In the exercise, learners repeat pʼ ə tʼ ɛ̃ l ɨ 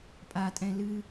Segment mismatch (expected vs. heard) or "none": ə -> a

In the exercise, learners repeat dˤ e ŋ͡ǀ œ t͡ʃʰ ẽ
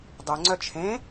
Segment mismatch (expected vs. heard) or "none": none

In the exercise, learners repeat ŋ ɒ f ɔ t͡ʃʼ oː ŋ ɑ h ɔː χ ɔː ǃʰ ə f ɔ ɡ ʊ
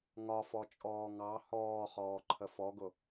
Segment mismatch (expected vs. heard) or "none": oː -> ɔː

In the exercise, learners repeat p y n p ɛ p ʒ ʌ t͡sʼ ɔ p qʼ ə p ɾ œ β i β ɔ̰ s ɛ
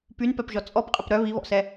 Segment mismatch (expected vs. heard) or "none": ʌ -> ɔ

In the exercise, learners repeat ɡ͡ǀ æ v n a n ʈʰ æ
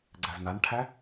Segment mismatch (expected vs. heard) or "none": none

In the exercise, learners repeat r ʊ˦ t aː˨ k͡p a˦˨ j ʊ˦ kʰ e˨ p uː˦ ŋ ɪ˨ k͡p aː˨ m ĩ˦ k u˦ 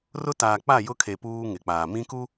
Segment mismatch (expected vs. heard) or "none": none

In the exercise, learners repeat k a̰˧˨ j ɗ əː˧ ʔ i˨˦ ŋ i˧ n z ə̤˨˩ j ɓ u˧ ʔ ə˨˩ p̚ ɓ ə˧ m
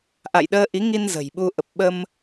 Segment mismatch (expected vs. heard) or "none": k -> ʔ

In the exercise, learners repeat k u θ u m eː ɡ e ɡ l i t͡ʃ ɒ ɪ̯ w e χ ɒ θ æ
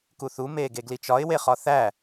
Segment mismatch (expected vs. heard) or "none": none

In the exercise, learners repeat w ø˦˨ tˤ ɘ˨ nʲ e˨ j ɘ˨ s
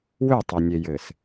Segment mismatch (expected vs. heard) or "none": none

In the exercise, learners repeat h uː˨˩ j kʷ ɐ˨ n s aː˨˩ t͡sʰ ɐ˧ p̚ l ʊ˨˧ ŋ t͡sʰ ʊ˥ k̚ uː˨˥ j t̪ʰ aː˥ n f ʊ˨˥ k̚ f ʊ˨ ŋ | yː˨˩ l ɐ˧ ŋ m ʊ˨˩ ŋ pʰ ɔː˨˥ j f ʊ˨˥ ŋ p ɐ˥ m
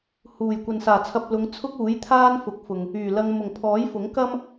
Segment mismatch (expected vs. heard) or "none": p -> k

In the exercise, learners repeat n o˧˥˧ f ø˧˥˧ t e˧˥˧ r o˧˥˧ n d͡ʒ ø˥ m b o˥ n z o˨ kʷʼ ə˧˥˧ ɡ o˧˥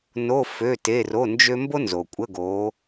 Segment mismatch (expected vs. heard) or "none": none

